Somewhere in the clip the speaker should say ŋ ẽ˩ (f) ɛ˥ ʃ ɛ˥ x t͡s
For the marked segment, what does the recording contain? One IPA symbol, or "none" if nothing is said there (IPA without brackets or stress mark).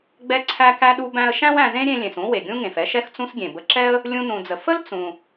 f